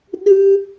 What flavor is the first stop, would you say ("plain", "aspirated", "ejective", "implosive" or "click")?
implosive